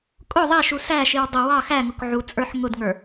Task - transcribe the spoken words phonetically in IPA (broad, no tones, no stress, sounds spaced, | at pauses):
kʼ ʊ ðˤ ɛ ʃ u s æ ʃ i w dˤ ʌ w ɑ x æ ŋ ʊ k ʕ u t͡sʼ ə˞ ħ ŋ ʊ d ŋ ə˞